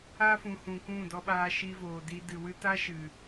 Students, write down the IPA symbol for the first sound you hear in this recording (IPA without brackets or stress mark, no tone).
aː